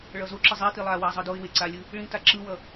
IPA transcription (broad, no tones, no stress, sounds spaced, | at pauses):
ɭ ʌ z o ǁ ɯ zˤ i t i lˠ a w a zˤ ɯ d o ɪ̯ w e ǀ a lʲ ɯ | ɭ ĩ t a ǁ ɯ w ʌ